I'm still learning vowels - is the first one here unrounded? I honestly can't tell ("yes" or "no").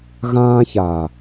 yes